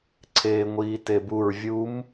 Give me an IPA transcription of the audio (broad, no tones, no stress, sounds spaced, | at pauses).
ǀʰ eː ŋʷ iː t e b u ɹ vʲ u m